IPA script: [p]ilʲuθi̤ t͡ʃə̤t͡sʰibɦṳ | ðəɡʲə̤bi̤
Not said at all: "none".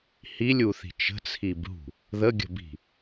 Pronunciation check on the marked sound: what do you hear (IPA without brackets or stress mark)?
h